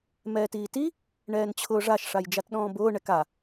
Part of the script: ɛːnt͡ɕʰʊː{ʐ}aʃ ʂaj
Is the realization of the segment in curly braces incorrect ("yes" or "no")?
no